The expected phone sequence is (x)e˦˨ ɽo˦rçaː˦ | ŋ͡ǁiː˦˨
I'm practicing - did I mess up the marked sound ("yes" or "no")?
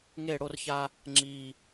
yes